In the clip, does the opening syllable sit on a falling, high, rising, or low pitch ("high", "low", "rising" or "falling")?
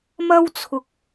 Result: high